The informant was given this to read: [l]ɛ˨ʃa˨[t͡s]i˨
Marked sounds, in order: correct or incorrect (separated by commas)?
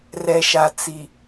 incorrect, correct